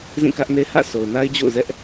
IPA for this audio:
zĩ˦˨kä˦ʔne˦ hä̰˦˨so˨ʊ̯na˦ɪ̯d͡ʑo̰˦˨ʊ̯ zɛ˦ʔ

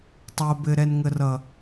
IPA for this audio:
tˤo˨bɘ˨ ɾɛ˨nŋə˨rʌ˨

